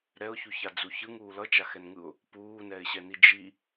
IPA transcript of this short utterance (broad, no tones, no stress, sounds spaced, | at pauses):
ɾ ɛ ʊ̯ ç u ç a d͡z u ç ɯ ŋ uː l ʌ t͡ʃ a x ɛ n ŋ ɯ ʊ̯ | p uː n ɛ ɪ̯ ɕ ɛ n i d͡ʒ i